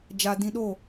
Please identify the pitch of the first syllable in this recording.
low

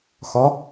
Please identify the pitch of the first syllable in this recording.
rising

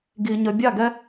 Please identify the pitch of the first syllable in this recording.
low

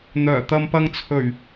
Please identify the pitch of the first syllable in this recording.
low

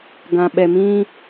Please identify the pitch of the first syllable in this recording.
low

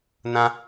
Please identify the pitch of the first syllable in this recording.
high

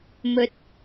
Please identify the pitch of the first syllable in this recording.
rising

